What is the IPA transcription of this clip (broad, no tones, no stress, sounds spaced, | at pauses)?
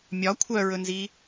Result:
mʲ ɒ kʷʰ œ ɹ ɵ n z i